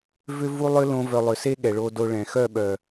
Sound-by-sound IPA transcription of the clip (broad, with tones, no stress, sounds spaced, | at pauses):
v ʏ˦ v u˦ lˠ ʏ˦ l õ˦ v œ˧ lˠ ʏ˨ s e˦ ɠ ɛ˨ ɭ o˧ d o˧ ɭ ɛ̃˨ x œ˦˨ ɓ œ˨